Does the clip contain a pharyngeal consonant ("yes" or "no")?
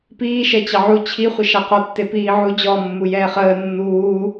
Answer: yes